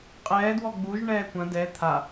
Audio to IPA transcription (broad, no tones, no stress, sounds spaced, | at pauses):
qʼ ɛː d w ɔ ɡ͡b u ʒ ɳ ɛː kʷ ɐ̃ d ɛ t̪ʰ a